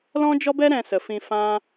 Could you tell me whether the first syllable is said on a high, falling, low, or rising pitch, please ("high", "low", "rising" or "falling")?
high